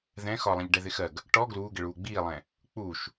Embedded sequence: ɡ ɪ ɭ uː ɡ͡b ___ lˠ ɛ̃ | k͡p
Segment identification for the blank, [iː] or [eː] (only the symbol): iː